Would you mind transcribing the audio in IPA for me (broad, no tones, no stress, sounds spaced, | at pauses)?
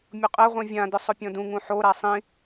mʲ ʊ qʼ ɛ ʁʷ ĩ vʲ ã d ʊ sˤ ʊ pʲ ɔ̃ d ũ ŋ ũ ħ o ɾ a sˤ ĩ